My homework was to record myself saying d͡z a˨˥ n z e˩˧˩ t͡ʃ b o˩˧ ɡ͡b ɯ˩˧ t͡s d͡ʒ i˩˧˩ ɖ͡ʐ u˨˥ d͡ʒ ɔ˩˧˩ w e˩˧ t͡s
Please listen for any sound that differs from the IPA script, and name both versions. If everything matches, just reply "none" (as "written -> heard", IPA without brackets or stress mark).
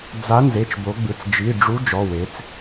none